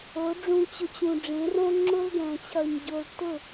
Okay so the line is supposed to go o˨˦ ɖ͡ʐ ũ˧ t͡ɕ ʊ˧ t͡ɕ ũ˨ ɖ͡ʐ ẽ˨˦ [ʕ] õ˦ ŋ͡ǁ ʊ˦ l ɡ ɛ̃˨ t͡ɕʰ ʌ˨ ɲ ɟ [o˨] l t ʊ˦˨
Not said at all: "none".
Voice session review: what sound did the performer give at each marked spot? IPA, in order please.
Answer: r, o˨

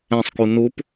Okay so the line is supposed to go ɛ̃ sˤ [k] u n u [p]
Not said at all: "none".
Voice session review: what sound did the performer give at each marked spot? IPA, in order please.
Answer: k, p

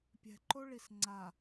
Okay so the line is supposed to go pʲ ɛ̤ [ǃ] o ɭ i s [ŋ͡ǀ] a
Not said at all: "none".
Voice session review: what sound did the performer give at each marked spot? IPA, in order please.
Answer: ǃ, ŋ͡ǀ

